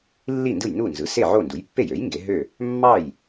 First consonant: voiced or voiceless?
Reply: voiced